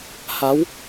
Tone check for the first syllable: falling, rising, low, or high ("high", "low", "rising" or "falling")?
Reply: rising